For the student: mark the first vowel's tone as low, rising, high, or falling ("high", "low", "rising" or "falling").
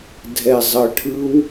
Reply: low